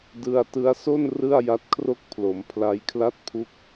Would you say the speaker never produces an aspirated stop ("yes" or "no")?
no